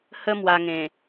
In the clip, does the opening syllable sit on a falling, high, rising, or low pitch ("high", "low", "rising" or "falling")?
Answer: high